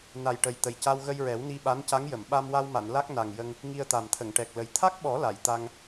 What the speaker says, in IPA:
n a˨˩ j ʈ ə˨˩ j t̪ ə˨˩ j c a˧ w ɣ ə˧ j ɹ ɛ˨˩˦ w n i˧ ɓ a˧˥ n c a˧˥ ŋ j ə˨˩˨ m ɓ a˧ m w a˧ w m a˨˩˨ n l a˦˥ k̚ n a˨˩ ŋ j ə˧ ŋ | ŋ i˧ ə̯ t̪ a˨˩ m t̪ʰ ə˨˩˨ ŋ ʈ ɛ˨˩ k̚ l ə˨˩ j t̪ʰ a˦˥ k̚ ɓ ɔ˨˩˦ l a˨˩˨ j t̪ a˧ ŋ

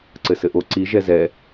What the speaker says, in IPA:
ǀ ɘ s ɘ ʔ o ǀ i ʒ ɛ z ɛ

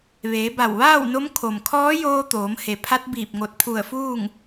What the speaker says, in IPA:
ʋ eː˩˧ b a˧˩ w ʋ aː˥˨ w n o˧˥ m kʰ o˩ m kʰ ɔː˧˥ j oː˧ t̪ oː˩˧ m h e˩˧ pʰ a˧˥ t̚ b iː˧˩ p̚ ŋ o˧˩ t̚ pʰ u˧˩ ə̯ f uː˥˨ ŋ

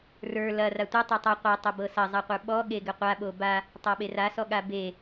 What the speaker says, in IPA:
r ə˞ l ɐ r a tʷ ɘ tˤ e tˤ a qʷ ɤ tˤ ɐ b ɤ s ɐ zˤ a qʷ ə˞ ɓ ɔ ɠ e ɡ ɘ qʷ a ɓ o b a | tˤ a ɓ e r a s ɔ ɠ a b e

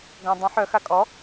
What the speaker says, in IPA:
ɡ œ̃ dˤ ə̃ ħ œ x a kʼ ɔ

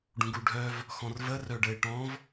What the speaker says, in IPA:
ɖ ũ ɡ u ɖʱ œ v | x ɔ̃ r v ə r œ ɖ ə ɪ̯ ʈ ɔ̃ v

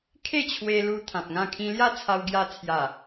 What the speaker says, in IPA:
kʰ e˥˧ t͡ɕʰ w e˧ l u˧ t̪ʰ ã˨ p̚ ŋ ã˥˧ kʰ ĩ˦ l j a˥˧ t͡sʰ a˧ w ɡ j a˧ t͡sʰ j a˨˩

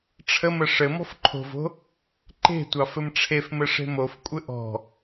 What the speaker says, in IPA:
ʈ͡ʂʰ ə m ə ʂ ɘ m ɔ̤ f ǃʰ o̤ v o̤ | ǃ e̤ tʷ ɑ f ɘ m ʈ͡ʂʰ e f m ɘ ʂ e̤ m o f kʷʼ ɘ ʔ ɔ̤

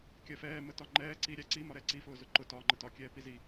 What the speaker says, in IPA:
kʲ ɜ f ɛː m ə t ɒ ŋ͡ǃ ɛː ǀ i ɾʲ æ ǀ i m ɒ ɾ ɛ ǀ i f ʊː z ʊ ǃ ʊ t ɒː ŋ͡ǃ ə t ɒ kʲ ɛː p i z i

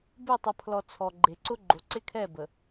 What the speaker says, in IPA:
b e˦˨ tˤ ə˨ pʰ l ɔ˨ t͡sʰ ɔ˨ ɡ͡ǃ e˨ ǀ ʊ˦ ɡ͡ǃ o˨ ǀ ɪ˦ kʰ ɛ˦˨ b ə˨

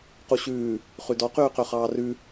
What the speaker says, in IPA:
q u ɕ ʉː | χ ʉ d ɔ q yː q ø χ ɑː r ʉ

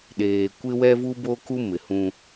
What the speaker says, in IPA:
ɗ eː˨ kʷ ɪ˦ w ɛ˦ v u˦ b o˦ k u˦ m ɪ˨ h ũ˦

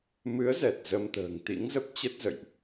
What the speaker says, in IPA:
m ɨ˨˦ ə̯ z ɛ˨˩ t̚ z ə˧ m t̪ ə̤ː˨˩ ŋ t̪ ḭ˧˥ ŋ z ə˦˥ p̚ t͡ɕ ə˦˥ t̚ z ə̰˧˨ j ʔ

